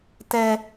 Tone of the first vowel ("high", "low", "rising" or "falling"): high